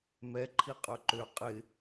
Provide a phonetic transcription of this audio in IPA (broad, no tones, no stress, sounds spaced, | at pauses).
m ɛ ǃʰ i qʼ œ ǃ ø qʼ ɪ